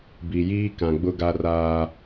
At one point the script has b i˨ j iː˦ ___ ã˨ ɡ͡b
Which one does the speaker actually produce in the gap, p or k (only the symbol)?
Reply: k